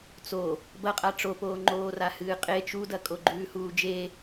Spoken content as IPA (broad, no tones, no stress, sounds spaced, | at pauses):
t͡s o | b ɐ qʼ a ʈ͡ʂ o p oː ŋ͡ǃ oː r a h ɨː qʼ e t͡ʃ u d ɐ kʼ o ɡ͡ǃ ʉː h uː d͡ʒ e